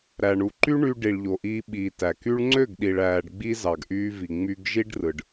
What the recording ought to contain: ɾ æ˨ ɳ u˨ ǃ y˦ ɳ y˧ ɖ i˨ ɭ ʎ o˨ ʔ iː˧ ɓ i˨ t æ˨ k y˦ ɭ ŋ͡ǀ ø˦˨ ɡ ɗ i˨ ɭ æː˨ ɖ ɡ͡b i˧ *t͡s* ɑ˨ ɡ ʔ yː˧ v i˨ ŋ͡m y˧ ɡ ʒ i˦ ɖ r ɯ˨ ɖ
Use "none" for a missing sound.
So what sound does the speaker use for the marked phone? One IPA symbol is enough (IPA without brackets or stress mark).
z